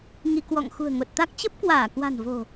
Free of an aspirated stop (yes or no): yes